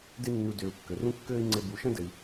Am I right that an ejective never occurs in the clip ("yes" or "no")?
yes